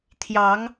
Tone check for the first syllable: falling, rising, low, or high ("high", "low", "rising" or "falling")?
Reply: rising